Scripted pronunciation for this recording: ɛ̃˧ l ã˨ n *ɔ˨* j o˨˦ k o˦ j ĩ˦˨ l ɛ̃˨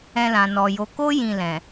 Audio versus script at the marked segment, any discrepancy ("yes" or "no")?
no